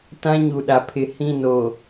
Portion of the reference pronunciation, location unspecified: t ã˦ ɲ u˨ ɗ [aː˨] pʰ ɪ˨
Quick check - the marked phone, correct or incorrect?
incorrect